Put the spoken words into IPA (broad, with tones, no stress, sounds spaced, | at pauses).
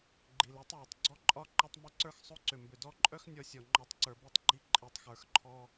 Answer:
ɡ͡ǃ i˨ l ə˞˦ tˤ j œ˨ tˤ ɡ͡ǀ ɔ˦ ǃʼ ɒ˦ ǃ ɒ˧ tˤ m ʏ˨˦ ǀ ə˞˧ x sˤ o˦ ǀ ʏ˨ m b ʏ˨ d ɔ˧ ǃʼ œ˦ x nʲ ɔ˧ sʲ ɔ˨ ŋ͡ǃ ɔ˧ tˤ ǀ ə˞˨ b i˧ tˤ ɡ͡ǃ i˧ ǃʼ i˨ tˤ x ə˞˨ x ǃʰ ɔ˧